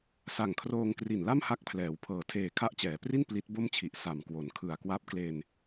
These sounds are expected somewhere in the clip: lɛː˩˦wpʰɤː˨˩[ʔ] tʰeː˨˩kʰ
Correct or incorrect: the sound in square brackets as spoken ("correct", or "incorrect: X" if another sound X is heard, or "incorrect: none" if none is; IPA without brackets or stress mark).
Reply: incorrect: none